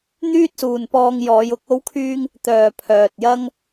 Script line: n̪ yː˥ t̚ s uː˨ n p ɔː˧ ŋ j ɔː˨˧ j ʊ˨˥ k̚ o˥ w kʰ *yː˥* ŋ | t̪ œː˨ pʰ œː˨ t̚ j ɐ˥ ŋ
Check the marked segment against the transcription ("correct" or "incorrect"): correct